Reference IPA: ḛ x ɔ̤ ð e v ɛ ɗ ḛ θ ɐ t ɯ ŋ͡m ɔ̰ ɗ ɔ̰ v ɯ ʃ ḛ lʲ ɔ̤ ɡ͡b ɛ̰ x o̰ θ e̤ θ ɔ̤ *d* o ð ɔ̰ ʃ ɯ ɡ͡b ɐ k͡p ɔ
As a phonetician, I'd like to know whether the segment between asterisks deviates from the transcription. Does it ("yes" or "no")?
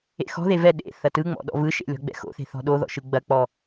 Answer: yes